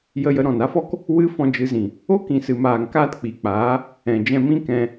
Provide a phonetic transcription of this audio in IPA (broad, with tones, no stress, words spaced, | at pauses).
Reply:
jə˧jə˧ ɾɔ̃˨na˦fɔ˦k | wɨ˦ fɔ̃˧d͡ʒɨ˧zĩ˨ | o˦kĩ˨sɨ˨maː˨ŋ kaː˦tk͡pi˨k͡paː˨˦ | ɛ̃˨ d͡ʒɛ̃˧mĩ˦ kɛ̃˧